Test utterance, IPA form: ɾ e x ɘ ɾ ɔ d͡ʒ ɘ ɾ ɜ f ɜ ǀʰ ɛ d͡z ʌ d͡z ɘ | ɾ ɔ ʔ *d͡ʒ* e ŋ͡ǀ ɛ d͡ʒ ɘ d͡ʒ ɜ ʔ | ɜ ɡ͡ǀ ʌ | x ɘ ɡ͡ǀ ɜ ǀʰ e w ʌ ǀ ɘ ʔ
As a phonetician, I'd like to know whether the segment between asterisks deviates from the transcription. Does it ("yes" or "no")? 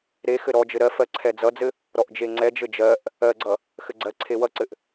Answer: no